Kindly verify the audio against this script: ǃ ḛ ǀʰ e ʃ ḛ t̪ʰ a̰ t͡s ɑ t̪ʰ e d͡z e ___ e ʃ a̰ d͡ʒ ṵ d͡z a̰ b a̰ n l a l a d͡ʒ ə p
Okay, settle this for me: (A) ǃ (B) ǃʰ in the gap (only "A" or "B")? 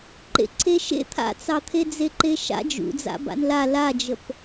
A